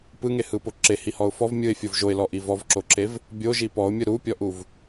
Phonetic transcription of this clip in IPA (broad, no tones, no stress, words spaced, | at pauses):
pɯŋehɯpo ǁehihɔʊ̯ fɔv mʲɯɪ̯fʲov ʒoɪ̯lɔʔi vɔvǁoǁev | bʲoʒi pɔʊ̯mʲɯ ɾupʲɔʔuv